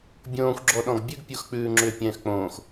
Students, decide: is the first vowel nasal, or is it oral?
nasal